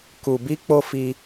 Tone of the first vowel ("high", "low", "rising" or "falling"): low